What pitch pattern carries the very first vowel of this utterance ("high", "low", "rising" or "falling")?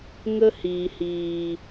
high